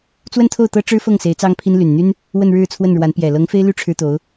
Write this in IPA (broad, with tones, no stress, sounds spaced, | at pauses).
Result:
t͡s w ə˥˧ n t̪ʰ o˥˩ ʊ̯ t̪ ɤ˥ ʈ͡ʂ ɻ̩˥ f ɤ˥˩ ŋ s e˧˥ ɪ̯ t͡s ɑ˥ ŋ pʰ i˥ n l y˨˩ n n̪ y˥ n | w ə˥˧ n ɻ ɻ̩˥˧ t͡sʰ w ə˥˩ n ɻ w a˧˥ n p j ɛ˨˩ l ɤ˧˥ ŋ f e˥ ɪ̯ l y˥˩ ʈ͡ʂʰ ɻ̩˥ t̪ o˧˥ ʊ̯